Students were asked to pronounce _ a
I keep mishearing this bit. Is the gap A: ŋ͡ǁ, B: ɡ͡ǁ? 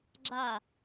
B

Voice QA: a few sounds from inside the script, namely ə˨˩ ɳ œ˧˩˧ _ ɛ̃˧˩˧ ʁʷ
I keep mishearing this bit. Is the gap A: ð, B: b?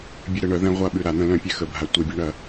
A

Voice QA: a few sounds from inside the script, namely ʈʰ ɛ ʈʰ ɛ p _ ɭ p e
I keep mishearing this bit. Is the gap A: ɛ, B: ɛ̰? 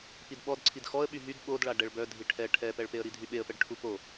A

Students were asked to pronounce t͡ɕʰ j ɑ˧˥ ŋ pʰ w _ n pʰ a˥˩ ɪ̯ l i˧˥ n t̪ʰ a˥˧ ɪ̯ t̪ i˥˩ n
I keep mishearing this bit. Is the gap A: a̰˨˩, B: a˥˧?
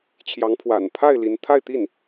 A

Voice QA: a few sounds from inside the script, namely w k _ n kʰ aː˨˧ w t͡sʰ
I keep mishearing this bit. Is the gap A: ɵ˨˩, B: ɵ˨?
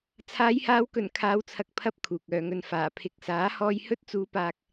A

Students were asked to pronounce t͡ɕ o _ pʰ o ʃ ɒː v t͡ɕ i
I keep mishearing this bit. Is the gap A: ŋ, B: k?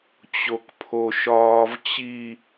B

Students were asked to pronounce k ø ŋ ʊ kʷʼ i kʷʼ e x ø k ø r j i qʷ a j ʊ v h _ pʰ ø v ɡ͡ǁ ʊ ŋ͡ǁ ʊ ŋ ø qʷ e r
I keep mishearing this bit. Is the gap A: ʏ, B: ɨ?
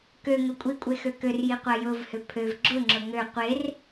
A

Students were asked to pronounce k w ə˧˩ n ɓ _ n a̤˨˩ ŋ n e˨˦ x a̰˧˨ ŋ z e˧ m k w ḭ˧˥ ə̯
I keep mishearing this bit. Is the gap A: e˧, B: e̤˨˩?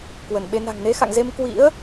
A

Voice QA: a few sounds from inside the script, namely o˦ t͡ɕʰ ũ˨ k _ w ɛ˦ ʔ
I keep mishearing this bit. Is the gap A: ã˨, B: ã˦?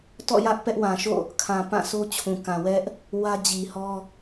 A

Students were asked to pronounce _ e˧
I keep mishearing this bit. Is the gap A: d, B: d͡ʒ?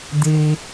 A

